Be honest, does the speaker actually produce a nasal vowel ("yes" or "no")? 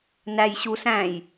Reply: yes